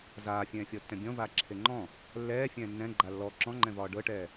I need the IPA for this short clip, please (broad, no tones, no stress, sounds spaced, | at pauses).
z aː fʲ ɛ̃ː fʲ ɔ tː ɛ̃ bʲ ɔ̃ v aː ǁʰ e ŋ͡ǃ ɔ̃ | lː ɛː fʲ ɛ̃ː nː ɛ̃ ɡ͡ǃ a lː ɔ ǁ ɔ̃ ŋ͡ǃ ɛ̃ v ɒː ɖ ɤ ʈ ɛː